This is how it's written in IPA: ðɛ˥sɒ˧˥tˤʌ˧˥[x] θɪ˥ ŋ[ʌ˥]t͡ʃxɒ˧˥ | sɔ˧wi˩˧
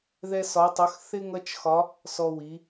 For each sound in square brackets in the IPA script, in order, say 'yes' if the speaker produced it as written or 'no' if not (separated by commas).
yes, yes